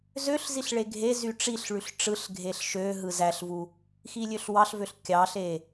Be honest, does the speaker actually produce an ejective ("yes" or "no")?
no